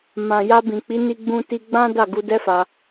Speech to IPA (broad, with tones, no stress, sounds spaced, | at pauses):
m ã˨ j a˧ b ĩ˨ k͡p i˨˦ n i˧ ɡ͡b ũ˧ t i˧ ɡ͡b ã˦ d a˦˨ ɡ u˧ d ɛ˦ f a˧